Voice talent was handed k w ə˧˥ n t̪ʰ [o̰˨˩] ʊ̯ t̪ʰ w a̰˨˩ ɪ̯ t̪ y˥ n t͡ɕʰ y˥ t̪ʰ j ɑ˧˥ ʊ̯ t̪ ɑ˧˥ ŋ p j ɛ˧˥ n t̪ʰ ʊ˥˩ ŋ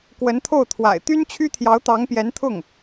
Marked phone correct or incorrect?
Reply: incorrect